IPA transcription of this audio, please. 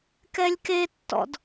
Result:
k ɛ lʲ k e tː ɔ̰ d

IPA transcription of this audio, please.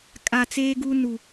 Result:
kʼ a˨ t͡s eː˦ ɡ u˦ n u˨

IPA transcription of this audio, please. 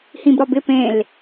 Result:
h ĩ b ɾ ɒ b ɪ p ẽ l

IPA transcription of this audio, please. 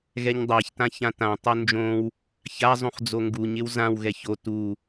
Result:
ɣ ɛ ɲ dˤ a ç t ã ç ã t ã tˤ o n d͡ʒ õ w | ç a zˤ ũ χ d͡z o ŋ ɡ u ɲ ɪ w z ã w ɣ ɛ ç o t u

